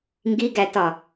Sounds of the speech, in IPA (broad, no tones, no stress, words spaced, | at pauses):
ŋɡiɡætɒ